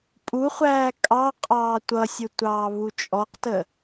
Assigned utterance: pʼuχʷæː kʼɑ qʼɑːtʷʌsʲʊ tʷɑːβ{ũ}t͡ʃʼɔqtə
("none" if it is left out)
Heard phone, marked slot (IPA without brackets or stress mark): u